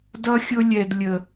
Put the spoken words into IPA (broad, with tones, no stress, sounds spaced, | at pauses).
d ʌ˦ xʲ ʊ˦ lʲ ɛ˨ d lʲ ə˨